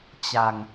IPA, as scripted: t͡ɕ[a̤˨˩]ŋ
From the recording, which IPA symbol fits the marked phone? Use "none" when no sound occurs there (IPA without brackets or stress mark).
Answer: a̤˨˩